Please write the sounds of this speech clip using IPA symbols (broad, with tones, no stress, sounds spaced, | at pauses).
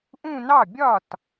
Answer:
ʔ ũ˥˧ n ɑ˥˩ bʲ ɒ˥˩ t